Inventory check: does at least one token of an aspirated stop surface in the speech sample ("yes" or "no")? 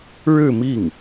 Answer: no